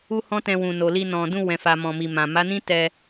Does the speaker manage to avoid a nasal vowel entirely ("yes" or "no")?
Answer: no